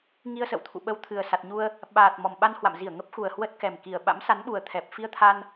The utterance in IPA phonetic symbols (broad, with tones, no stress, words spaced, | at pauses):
ŋi˧ə̯sə̰˧˨wt̪ʰṵ˧˨ ɓə˧wt̪ʰɨ˨˩ə̯ sa˨˩t̚ɲu˧ə̯ | ɓaː˨˩t̚ mɔ˨˩mɓa˧nhwa̰˧˨mzi˧˩ə̯ ŋə˦˥p̚xu˨˩ə̯ hwə˦˥t̚kɛ˨˩mki˨˩ə̯ ɓa̰˧˥msa˨˦nɓu˨˩ə̯ t̪ʰɛ˨˩p̚ fi˧ə̯t̪ʰa˧n